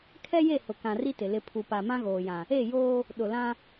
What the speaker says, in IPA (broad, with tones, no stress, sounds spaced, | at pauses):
kʰ ɛ˦ j e˦˨ h ʊ˨ k ã˨ r i˦ t ɪ˨ l ɪ˦˨ pʰ u˨ p a˨ m ã˦ ɣ oː˨ j ã˨ | e˦˨ j oː˦ | ɗ ʊ˨ l ã˦